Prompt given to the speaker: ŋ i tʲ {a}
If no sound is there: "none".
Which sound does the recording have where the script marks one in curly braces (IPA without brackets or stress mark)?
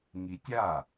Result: a